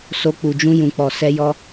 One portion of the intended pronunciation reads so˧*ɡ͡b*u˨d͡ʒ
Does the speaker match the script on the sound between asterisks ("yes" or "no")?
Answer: no